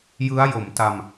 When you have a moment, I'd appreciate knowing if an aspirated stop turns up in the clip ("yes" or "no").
no